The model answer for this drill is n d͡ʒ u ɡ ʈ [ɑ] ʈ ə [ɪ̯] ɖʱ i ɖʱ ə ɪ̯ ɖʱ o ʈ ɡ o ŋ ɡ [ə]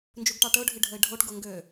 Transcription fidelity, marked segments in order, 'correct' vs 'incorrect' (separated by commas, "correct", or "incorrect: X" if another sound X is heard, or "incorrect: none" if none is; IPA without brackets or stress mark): correct, incorrect: ʊ̯, incorrect: ø